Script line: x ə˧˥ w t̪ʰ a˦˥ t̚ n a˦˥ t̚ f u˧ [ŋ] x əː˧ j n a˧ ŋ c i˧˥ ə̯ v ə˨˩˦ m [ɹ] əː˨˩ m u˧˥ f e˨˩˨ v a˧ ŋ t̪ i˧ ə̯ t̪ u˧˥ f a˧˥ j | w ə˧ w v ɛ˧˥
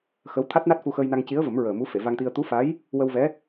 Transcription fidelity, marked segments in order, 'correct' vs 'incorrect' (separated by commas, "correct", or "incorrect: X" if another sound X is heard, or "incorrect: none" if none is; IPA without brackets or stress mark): incorrect: none, correct